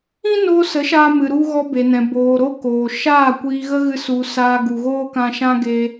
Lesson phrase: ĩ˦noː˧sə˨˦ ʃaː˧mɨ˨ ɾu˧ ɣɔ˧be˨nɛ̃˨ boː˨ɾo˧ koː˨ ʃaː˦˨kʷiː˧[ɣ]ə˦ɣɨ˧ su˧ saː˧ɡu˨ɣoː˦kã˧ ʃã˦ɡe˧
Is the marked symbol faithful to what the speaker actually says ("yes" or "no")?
yes